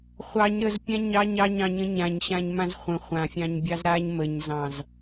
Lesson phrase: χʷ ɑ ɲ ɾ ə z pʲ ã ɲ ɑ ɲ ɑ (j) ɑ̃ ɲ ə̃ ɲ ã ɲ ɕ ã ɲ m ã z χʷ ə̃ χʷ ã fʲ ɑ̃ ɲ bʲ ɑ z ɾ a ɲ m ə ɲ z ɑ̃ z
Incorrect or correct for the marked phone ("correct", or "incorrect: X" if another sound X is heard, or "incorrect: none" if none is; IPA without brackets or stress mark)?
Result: incorrect: ɲ